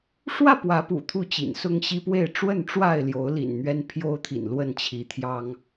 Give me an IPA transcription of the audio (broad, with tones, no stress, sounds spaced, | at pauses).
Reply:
ʂ w ä˥˨ p w ä˨˦ p ṵ˨˩ t̪ʰ u˥˨ t͡ɕ ḭ˨˩ n s ʊ˦ ŋ ɕ i˦ p w e˥˨ ɪ̯ ʈ͡ʂ w ə˥˨ n ʈ͡ʂ w a˥˨ ɪ̯ l j o˨˦ ʊ̯ l ḭ˨˩ n n̪ ɥ ɛ˦ n pʰ j o˦ ʊ̯ t̪ʰ ḭ˨˩ n l w ə˥˨ n t͡ɕʰ i˨˦ t̪ʰ j ɑ˦ ŋ